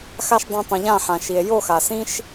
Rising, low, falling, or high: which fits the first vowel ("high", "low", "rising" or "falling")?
high